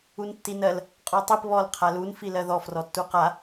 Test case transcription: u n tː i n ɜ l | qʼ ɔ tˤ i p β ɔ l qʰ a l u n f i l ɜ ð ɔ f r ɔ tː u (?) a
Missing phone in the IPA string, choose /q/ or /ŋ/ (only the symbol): q